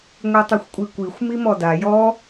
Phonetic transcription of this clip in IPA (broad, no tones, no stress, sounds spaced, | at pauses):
ŋʷ i tˤ ɵ xʷ kʷʼ i kʷ i xʷ m i m ɔ d a j ɔ